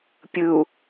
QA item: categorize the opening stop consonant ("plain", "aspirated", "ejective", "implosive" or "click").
plain